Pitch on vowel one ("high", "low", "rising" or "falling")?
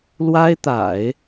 high